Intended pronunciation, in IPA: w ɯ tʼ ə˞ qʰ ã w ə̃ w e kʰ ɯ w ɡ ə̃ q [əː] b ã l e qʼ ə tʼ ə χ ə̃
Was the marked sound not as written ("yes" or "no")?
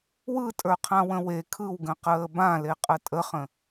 no